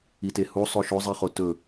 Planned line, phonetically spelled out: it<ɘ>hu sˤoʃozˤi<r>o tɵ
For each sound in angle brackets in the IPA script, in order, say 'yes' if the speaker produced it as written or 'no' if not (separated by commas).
no, no